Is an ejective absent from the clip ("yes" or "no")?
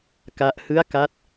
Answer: yes